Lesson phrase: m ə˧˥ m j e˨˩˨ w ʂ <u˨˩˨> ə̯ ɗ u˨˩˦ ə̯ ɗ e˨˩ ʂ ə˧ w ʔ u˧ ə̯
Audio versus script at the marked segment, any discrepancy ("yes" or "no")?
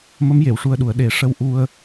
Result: yes